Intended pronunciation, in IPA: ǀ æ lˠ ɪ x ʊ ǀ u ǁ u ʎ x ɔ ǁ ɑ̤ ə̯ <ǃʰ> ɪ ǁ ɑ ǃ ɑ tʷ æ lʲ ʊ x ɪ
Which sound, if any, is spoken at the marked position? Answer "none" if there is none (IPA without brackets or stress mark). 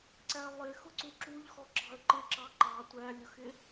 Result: ǃ